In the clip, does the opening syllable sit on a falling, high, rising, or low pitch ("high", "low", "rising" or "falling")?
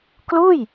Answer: falling